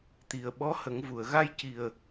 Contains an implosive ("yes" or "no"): yes